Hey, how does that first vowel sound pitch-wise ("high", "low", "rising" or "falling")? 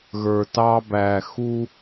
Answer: low